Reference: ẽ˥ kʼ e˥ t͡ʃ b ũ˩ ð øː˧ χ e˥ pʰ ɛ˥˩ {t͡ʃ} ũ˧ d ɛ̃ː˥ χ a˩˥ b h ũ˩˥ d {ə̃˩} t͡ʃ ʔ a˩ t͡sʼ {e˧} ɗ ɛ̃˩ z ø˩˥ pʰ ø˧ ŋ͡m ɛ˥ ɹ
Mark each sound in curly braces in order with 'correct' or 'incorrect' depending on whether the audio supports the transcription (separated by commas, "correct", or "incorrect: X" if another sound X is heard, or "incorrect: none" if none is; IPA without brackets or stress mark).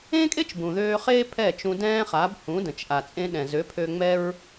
correct, correct, incorrect: ẽ˧